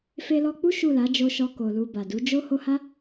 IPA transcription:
f e˧ l ɔ˧ k͡p u˦ ʃ u˦˨ l a˨˦ d͡ʒ o˧ ʃ ɔ˧ k o˨ l u˨ b a˨ d u˨˦ d͡ʒ o˦ h o˧ h a˦

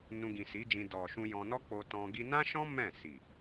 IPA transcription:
n ũ˧ ɡ ĩ˨ s i˨˦ d͡ʒ ĩ˧ d ɔ˨ ʃ ũ˧ j ɔ̃˧ n ɔ˦ k͡p o˧ t ɔ̃˧ ɡ i˧ n ã˦ ʃ ɔ̃˦ m ɛ̃˦˨ s i˨

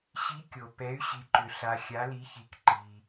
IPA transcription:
ɕ i˨˦ kʲ o˨ p ɛ˨˦ y̯ ɕ i˨ ǃ ʏ˨ ɬ a˨ xʲ a˨˦ l i˨˦ ç i˨ k ǃ i˨

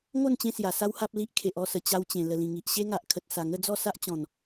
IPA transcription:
ŋ o˥˧ n t͡ɕ ẽ˧ s j a˨˩ s a˦ w h a˦ p̚ l i˦ ʔ kʰ e˨ ʔ ɔ˥˧ s ə˨˩ t͡ɕ a˧ w t͡ɕ ẽ˨˩ l ə˨˩ l ĩ˨˩ ŋ i˨ ʔ ɕ e˦ ŋ a˨ ʔ kʰ ə˨ t̚ s a˨˩ ŋ ə˥˧ d͡z ɔ˥˧ s a˦ ʔ t͡ɕ ɔ̃˨˩ n

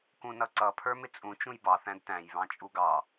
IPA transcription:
k ũ n ʌ ǀ ʌ pʰ ə˞ m ɪ t͡sʼ ũ t͡ʃ ũ j b ɑ θ æ̃ d t æ̃ j β ɑ̃ t͡ʃʼ u ɡ ɑ

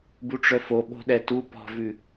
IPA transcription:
b u ʈ͡ʂ œ f o ɓ o̤ ɗ ɛ t u p ɔ̤ v ʉ

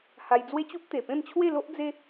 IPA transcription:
h a˧ j d͡z w e˦ t͡ɕ u˦ p̚ t̪ e˨˩ p ẽ˥˧ m t͡ɕʰ w e˥˧ l o˦ ʔ d͡z e˦

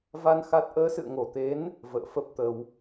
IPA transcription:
v a˧ n x a˦˥ t̚ ʔ əː˨˦ s ɨ̰˧˨ ə̯ ŋ o˧˩ t̪ e˨˦ n | v ə̰ː˧˨ f ə˦˥ p̚ t̪ ə˧ w

